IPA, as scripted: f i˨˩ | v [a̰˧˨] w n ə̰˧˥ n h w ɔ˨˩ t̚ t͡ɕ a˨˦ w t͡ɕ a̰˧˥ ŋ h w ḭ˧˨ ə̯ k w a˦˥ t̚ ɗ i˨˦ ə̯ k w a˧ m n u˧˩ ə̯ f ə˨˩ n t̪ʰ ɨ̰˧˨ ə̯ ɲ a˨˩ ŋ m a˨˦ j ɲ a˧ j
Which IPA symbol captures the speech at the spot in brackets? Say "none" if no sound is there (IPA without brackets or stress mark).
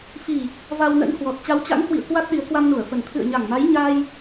a˧